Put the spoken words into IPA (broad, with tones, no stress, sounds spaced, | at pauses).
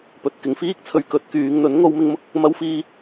p ɵ˨ t̚ k ɪ˨ ŋ f iː˥ k̚ t͡sʰ ɵ˧ ɥ k ɵ˧ t̚ k yː˨˧ ŋ n̪ ɵ˨˥ n ŋ o˧ w m ɪ˧ ŋ m ʊ˧ k̚ | m ɐ˥ w f iː˥